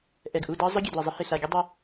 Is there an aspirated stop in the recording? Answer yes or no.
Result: no